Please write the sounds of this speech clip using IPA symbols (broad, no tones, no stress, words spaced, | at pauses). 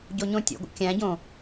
ɟoɲõtʲo̰ɡʷə̰ kʲæ̃ɟõ